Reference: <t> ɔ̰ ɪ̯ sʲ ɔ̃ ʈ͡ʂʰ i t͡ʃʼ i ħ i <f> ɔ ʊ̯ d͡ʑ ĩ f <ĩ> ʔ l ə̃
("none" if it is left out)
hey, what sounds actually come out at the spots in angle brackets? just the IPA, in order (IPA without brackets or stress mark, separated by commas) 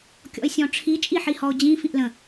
kʲ, h, ĩ